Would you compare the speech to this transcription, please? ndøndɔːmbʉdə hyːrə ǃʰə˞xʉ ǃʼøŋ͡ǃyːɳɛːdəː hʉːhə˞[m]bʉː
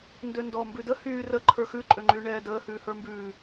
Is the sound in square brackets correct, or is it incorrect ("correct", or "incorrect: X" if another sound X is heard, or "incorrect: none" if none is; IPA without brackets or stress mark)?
correct